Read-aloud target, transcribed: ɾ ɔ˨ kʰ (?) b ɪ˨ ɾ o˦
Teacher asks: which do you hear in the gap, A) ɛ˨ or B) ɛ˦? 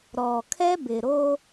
B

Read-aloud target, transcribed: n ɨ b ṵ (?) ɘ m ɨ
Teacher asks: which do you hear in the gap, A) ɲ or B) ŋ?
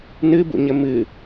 A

